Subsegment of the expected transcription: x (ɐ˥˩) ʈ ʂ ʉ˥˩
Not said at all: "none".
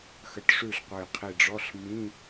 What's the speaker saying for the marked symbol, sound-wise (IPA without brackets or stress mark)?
ɐ˧˩